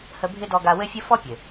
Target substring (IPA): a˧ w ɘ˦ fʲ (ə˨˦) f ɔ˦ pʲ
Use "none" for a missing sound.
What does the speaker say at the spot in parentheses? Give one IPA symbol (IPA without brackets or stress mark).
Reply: ə˦